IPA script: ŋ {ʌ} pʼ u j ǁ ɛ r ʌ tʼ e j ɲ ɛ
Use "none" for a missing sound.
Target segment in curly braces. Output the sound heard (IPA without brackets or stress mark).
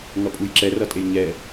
ʌ